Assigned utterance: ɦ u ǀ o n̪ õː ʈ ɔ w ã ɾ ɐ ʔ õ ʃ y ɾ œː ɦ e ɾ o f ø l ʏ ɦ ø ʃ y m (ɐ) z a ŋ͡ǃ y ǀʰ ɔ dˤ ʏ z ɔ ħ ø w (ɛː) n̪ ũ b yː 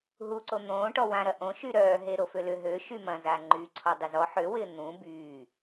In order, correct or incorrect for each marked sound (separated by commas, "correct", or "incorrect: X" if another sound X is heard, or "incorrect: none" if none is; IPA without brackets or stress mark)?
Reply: incorrect: ɐ̃, incorrect: ɪː